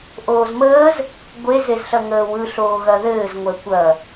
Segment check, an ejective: absent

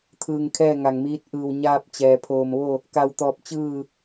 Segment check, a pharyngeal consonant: absent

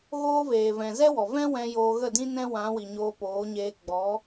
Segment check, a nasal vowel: present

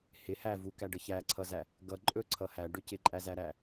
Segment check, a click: present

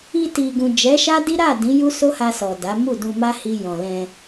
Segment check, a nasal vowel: present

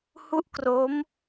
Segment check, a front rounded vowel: absent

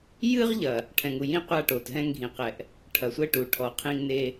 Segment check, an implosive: absent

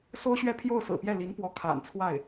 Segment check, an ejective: absent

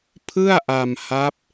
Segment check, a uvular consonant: absent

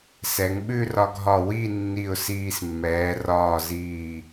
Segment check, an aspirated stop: absent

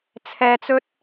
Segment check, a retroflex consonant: absent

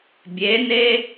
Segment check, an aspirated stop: absent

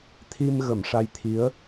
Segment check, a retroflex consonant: present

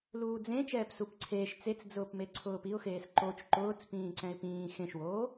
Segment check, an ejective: absent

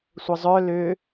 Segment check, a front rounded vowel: present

